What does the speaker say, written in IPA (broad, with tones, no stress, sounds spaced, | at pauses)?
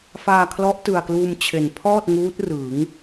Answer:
f aː˧ kʰ l ɔ˦˥ ʔ t ɯ˨˩ a̯ k l uː˧ m t͡ɕʰ e˨˩ n pʰ ɔː˥˩ t̚ ŋ uː˦˥ t̚ r ɯ˩˦ ŋ